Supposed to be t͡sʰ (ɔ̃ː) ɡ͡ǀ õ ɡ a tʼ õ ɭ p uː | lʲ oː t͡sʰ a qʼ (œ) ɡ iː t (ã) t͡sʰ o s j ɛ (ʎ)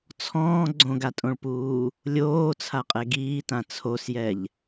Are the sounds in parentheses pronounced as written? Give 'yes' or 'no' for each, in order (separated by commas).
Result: yes, no, yes, yes